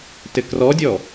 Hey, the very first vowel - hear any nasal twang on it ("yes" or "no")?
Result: no